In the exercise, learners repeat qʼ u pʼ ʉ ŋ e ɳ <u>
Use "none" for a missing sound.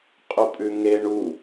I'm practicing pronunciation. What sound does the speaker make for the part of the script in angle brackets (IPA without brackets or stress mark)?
u